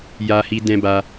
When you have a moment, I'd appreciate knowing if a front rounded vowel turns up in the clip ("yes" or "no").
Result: no